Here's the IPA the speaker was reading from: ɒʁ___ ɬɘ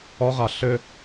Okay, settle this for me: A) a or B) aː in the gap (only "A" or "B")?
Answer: A